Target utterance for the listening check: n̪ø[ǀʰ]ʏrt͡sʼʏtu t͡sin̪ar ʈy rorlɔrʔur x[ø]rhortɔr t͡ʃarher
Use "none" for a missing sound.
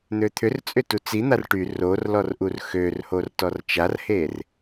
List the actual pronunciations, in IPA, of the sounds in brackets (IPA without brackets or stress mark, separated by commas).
t̪ʰ, ø